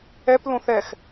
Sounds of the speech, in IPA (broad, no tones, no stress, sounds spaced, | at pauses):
ɛ p l õ θ ɛ x